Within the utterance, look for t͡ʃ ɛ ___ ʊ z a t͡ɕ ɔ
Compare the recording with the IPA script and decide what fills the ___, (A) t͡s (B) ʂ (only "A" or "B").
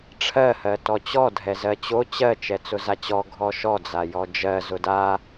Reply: A